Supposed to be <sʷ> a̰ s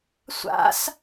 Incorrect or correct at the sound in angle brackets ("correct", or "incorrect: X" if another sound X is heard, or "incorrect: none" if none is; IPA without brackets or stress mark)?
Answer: correct